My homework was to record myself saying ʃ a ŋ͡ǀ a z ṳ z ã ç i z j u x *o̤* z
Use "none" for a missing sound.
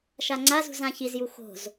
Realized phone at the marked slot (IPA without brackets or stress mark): o̤